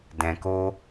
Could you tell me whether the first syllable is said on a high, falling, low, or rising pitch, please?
low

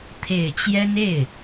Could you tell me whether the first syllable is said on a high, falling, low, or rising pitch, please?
low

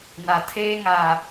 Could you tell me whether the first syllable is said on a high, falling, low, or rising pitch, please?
low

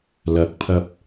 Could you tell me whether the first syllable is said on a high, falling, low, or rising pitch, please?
rising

